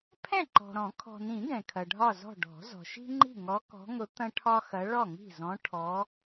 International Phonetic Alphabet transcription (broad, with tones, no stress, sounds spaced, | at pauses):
pʰ ɛ̃˥˨ ǃ ɔ̤˨ ɾ ɔ̃˨˩˦ kʰ ɔ̤˨ n ĩ˨˩˦ ɡ ɛ̃˨ kʰ ɐ˨ ɖʱ ɒ˥˨ z ɔ̤˥˨ ɖ ɔ̤˨˩˦ z ɔ̤˨ ʃ i̤˥ ŋ͡ǃ i̤˥˨ ŋ ɔ˧˥ k ɔ̤˧˥ ŋ ʊ˧˥ t̪ ɐ̃˥ ʈʰ ɒ˥ x ɐ˧˥ ɭ ɔ˥˨ ŋ i̤˥˨ z ɔ̃˧˥ ʈʰ ɔ˧˥